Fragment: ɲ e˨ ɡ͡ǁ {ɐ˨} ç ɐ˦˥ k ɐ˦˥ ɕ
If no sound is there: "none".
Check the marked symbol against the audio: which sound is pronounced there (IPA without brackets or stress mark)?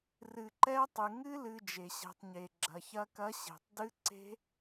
ɐ˨